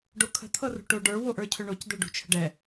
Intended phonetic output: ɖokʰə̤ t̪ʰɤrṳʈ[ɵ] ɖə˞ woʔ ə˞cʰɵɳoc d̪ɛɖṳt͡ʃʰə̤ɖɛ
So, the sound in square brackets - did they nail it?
no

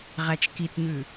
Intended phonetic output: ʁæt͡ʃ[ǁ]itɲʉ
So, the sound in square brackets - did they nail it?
no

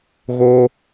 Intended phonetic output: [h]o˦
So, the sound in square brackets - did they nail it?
no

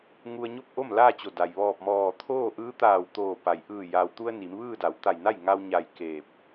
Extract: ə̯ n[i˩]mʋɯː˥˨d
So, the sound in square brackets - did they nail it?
no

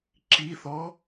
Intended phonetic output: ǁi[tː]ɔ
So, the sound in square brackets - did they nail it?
no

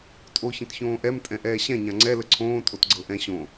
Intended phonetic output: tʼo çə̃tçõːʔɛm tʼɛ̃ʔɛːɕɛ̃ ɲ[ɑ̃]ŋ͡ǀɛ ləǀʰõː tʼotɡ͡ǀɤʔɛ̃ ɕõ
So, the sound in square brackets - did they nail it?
no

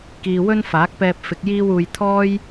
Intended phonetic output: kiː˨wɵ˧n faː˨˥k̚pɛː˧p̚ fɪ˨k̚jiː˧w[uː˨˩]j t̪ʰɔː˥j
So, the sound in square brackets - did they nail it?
no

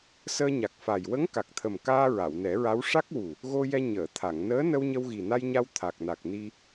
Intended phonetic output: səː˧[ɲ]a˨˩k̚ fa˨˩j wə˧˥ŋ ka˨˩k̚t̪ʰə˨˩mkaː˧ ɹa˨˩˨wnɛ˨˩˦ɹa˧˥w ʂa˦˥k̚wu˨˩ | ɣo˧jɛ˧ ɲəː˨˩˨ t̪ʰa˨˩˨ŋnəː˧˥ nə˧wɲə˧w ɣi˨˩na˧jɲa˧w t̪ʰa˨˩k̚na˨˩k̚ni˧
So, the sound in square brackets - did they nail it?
yes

